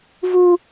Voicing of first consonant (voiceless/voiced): voiced